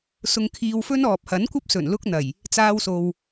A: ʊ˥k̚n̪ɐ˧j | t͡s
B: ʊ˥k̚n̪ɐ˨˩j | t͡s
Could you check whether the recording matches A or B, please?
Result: B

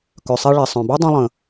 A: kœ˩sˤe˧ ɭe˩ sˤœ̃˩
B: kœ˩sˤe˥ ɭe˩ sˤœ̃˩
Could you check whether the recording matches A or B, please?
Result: A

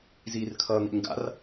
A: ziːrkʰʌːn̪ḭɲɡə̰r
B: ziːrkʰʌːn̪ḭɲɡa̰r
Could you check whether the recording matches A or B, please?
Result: B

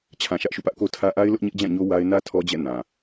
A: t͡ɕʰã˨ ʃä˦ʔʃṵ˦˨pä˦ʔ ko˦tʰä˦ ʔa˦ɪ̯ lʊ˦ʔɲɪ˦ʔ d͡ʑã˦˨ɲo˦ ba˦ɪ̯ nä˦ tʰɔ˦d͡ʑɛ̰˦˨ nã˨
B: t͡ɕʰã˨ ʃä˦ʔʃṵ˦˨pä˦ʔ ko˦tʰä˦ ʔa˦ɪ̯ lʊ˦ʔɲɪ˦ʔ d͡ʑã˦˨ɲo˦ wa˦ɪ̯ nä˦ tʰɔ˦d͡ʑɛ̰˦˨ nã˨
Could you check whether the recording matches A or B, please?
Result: B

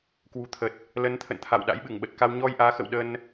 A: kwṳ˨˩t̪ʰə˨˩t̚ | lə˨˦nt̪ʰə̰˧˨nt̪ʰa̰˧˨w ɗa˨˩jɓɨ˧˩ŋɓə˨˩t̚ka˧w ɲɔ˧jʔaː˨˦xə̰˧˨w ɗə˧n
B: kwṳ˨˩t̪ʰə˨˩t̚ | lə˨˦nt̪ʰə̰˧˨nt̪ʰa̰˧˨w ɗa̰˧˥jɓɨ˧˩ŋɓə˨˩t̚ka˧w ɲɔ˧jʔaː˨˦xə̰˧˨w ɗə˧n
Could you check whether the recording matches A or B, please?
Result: B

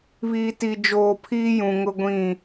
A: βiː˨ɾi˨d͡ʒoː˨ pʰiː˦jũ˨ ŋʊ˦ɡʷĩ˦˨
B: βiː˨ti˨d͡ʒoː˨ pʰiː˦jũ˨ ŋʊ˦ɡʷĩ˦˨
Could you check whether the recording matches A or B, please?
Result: B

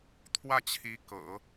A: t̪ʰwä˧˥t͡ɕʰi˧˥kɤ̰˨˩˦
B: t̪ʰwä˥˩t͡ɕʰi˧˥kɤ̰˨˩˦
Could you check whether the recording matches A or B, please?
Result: B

